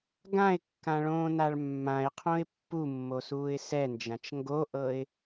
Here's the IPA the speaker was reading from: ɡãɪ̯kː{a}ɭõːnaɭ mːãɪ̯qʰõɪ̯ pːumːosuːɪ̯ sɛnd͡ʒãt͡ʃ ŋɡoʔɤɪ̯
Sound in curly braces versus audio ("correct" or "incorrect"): incorrect